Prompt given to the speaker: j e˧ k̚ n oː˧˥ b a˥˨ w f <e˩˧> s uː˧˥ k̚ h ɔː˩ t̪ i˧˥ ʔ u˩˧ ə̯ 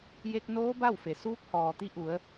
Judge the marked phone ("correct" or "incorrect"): incorrect